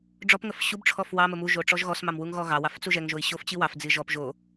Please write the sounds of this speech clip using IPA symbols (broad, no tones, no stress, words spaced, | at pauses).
ɖ͡ʐɔpŋəf ɕubʈ͡ʂʰɔf wɑmə muʒo ʈ͡ʂɔʒɣɔsmɑm wuŋɣɔɣɑwɑf t͡suʒɛŋʒoi̯ ɕoft͡ɕiwɑfd͡zi ʒɔp ʒo